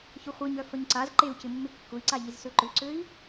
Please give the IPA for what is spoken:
ç ʊ χʷ i ɲ œ f ə ɲ ǀ a z ǃ e u̯ c ɪ mː ɪ kː ʊ i̯ ǀ a ʎ i z s ø ǃ ʏ ǀ ø i̯

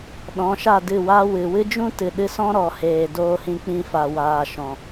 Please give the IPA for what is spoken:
ɗ ɔ̃˨˦ ʃ a˦˨ d ɨ˦˨ w a˦ w ɨ˨ w ɨ˦ d͡ʒ ũ˦ t ɨ˨ ɗ ɨ˧ s ɔ̃˦ ɾ ɔ˨ h eː˨ d oː˦ h ĩ˦ k͡p ĩ˧ f a˨ w aː˨ ʃ ɔ̃˨

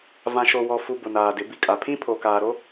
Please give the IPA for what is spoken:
v ã˨ ʃ o˨ w ɔ˨ f u˨ b ʊ˨ n aː˨ d ɪ˨˦ b i˨ kʼ a˨ pʰ ĩ˦ pʰ o˨ k aː˨ ɾ o˦

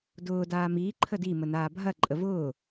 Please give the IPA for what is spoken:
d ʊː d aː m iː ǃʰ ə d i m ə n aː bʱ ɐ ǃʼ ə v ʊː

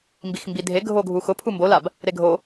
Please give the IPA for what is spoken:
m b i x m b i dʱ e ɡʱ o ɡʱ u x ʊ pʰ u m b o l a b | ɾ e ɡʱ o

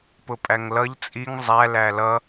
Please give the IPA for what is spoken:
p ʊ pʼ æ ŋ l ʌ ʎ t͡sʼ i ŋ zˤ æ l æ l ʌ

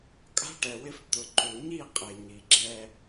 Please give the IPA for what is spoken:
kʼ a̤˦ ʈ ɛ˨ w ɪ˦ f t̪ ʊ˨ ǃ u˨ ɲ i˦˨ qʼ e˨ ɲ i˨ ɡ͡ǁ ɛ˦

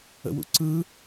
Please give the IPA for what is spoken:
ə̰ w ṵ ǀ ɯ

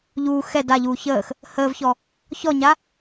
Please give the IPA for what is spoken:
ʎ uː x ɛ d a ʎ uː ç əː x | h əː v ç ɔ | ç ɔ ɲ a

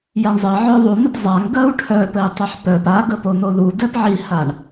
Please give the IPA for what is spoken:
j a ɳ zˤ ɜ ʕ œ ðˤ u n ɘ d zˤ a ŋ ɡ ɜ u̯ ʈʰ œ p ɘ i̯ tˤ ɘ ħ p œ p a ɡ ə p o n o l u d ɛ p ʕ i h a ɳ

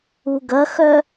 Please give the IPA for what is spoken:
u ɡ ɐ x œ

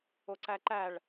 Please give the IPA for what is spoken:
o ǀ æ ǃ æ ɭ

